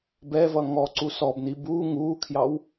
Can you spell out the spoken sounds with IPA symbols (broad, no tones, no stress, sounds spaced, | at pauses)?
b ɛ v ʌ ŋ ɔ ǀ u s ɔ b n i b uː ŋ uː kʰ j ɑ w